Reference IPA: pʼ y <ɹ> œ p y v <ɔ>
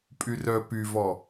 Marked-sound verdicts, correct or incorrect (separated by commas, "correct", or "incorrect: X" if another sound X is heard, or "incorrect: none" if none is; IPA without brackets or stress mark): incorrect: r, correct